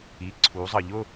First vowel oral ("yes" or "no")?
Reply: yes